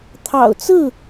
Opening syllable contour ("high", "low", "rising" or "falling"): low